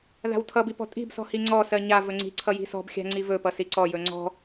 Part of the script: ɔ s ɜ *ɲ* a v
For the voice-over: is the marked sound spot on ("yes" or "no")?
yes